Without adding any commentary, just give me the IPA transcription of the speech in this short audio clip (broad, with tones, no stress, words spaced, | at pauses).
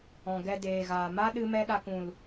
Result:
ɔ̃˨ɡɛ˧deː˨ɣaː˨ ma˦ ɗɨ˦mɛ˦ɗa˧k ũ˨l